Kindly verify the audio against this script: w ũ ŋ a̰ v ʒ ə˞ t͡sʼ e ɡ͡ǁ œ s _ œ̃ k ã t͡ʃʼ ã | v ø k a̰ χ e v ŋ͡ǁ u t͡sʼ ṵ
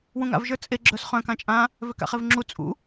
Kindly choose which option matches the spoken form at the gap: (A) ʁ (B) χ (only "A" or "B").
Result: B